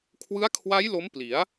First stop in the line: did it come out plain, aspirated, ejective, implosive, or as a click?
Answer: aspirated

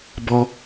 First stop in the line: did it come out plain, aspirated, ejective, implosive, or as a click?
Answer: plain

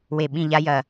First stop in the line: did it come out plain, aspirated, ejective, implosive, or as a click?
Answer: implosive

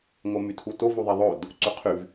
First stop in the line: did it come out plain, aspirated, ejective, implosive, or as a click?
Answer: aspirated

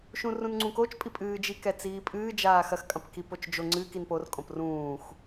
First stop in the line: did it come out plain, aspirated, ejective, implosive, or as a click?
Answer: click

